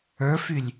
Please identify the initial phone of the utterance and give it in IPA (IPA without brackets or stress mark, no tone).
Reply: ə˞